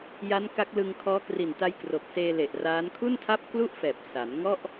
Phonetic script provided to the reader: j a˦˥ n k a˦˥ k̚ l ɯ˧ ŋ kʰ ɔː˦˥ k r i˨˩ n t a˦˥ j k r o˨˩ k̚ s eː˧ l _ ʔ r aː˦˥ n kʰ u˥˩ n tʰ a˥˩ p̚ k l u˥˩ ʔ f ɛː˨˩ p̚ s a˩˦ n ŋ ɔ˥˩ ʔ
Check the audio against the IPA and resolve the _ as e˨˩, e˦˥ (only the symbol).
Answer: e˨˩